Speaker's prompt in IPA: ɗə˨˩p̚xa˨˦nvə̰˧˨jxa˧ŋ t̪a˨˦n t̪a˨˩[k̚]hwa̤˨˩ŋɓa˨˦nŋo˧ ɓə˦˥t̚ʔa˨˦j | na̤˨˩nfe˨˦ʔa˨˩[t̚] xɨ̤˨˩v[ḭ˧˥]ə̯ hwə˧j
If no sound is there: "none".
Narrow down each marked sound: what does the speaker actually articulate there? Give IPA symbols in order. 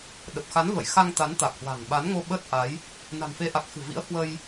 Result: k̚, k̚, ḭ˧˥

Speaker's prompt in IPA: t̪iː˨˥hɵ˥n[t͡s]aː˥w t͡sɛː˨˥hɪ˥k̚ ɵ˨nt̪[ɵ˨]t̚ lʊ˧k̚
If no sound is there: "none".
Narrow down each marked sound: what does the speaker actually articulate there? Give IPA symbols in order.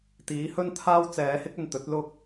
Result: t̪ʰ, ɵ˨˥

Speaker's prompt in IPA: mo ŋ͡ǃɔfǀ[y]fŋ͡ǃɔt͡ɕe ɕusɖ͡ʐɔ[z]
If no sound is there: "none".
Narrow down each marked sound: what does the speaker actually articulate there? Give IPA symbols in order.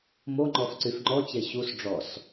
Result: y, s

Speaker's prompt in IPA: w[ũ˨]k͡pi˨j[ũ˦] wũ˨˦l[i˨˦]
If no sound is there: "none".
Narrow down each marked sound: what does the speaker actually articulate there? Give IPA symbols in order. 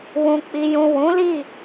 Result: ũ˨, ũ˨, i˦˨

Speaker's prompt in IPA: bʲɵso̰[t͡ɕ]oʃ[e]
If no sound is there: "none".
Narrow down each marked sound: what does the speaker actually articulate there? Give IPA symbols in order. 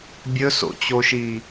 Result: t͡ɕ, i

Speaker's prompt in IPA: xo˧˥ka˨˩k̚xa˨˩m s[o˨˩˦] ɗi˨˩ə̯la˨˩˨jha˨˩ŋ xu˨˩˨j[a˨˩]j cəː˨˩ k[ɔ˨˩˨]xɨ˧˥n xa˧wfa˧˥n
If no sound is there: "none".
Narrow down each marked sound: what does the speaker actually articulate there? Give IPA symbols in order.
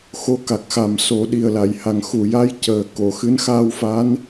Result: o˨˩˦, a˧˥, o˨˩˨

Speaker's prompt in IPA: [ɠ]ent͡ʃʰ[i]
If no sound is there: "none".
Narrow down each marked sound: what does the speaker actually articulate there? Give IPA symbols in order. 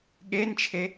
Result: ɠ, e

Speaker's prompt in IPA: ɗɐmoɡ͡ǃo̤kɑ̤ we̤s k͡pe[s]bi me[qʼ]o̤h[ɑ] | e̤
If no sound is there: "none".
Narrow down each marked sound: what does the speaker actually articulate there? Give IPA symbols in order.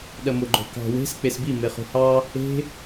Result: s, χ, ɑ

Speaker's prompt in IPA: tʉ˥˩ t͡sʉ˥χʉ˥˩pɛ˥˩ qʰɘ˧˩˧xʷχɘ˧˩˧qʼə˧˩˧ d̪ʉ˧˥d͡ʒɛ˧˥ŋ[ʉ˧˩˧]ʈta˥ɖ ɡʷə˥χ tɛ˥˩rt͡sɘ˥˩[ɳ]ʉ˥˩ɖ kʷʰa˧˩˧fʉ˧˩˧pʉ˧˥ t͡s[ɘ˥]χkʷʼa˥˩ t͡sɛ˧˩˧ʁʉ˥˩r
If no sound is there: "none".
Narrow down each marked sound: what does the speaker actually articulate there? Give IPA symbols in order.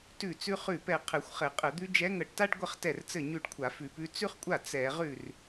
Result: ə˧˩˧, ɲ, ʉ˥

